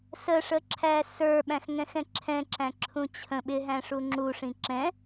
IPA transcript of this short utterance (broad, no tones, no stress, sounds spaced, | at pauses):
s ə ʂ ə ǁʰ æ s ə˞ ɓ æ̃ x ŋ ɛ̃ x ɛ̃ ǁʰ ɛ̃ ǁ æ̃ ǁʰ ũ t͡ɕʰ ə̃ ɓ ɪ ɦ æ̃ ʂ u ŋ͡ǁ u ʂ ĩ ǁ ɛ̃